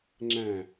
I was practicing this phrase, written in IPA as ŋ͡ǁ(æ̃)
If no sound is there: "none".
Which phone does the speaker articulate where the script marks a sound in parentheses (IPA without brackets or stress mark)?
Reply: æ̃